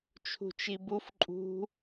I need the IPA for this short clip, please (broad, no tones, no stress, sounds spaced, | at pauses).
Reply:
t͡ʃʰ ṳ t͡ʃ i b u f ǃʼ ṳ